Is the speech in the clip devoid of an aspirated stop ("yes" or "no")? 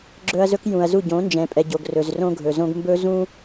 yes